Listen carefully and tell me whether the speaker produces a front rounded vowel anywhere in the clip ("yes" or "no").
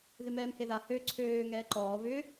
yes